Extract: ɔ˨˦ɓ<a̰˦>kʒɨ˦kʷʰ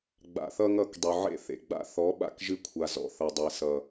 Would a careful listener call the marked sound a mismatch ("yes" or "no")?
yes